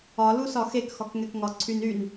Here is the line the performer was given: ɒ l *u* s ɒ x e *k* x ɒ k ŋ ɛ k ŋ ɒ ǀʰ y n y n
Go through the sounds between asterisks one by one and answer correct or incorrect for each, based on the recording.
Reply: correct, correct

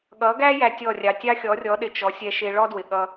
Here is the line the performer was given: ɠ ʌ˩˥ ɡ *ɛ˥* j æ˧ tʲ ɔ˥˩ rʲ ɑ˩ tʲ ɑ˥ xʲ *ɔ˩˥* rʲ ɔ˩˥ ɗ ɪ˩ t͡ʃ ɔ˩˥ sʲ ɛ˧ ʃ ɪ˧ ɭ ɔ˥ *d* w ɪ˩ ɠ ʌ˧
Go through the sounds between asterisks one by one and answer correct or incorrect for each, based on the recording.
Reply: incorrect: æ˥, correct, correct

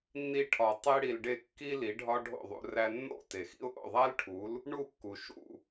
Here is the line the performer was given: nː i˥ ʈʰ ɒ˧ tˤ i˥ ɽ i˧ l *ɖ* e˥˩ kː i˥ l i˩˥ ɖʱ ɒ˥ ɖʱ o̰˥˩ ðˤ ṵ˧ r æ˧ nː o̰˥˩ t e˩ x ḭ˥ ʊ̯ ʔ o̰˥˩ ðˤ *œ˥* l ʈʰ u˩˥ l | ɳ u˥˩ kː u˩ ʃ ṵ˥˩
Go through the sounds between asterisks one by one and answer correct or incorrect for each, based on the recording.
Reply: correct, incorrect: æ˥

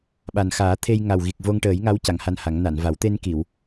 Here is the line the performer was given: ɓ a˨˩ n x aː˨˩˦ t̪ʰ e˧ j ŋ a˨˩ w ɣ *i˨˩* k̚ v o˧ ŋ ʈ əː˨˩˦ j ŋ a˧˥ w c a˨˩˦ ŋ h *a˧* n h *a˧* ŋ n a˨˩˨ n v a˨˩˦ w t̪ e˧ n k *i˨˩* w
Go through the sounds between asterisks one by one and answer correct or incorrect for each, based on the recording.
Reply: correct, correct, incorrect: a˨˩˦, incorrect: i˨˩˨

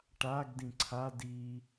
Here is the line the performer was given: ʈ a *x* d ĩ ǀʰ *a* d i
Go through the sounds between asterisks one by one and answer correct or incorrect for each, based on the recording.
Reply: incorrect: ɡ, correct

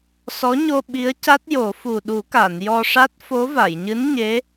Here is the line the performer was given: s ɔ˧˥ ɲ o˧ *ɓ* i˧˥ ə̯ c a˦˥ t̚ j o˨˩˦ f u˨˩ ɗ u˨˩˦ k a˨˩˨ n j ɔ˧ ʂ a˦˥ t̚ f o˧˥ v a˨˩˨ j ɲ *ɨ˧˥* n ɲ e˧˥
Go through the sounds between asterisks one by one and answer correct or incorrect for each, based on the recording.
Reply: correct, correct

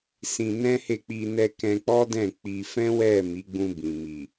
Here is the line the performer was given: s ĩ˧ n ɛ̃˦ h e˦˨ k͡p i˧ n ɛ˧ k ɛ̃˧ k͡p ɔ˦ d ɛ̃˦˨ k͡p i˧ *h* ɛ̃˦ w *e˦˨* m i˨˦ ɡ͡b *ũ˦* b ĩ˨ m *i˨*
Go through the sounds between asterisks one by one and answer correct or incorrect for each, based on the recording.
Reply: incorrect: f, incorrect: ɛ˦˨, incorrect: ũ˧, correct

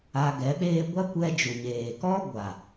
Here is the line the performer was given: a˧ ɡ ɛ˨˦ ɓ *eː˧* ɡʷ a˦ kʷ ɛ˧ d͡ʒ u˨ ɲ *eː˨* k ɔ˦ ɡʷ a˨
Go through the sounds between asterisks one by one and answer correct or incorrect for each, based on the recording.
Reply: incorrect: eː˦, correct

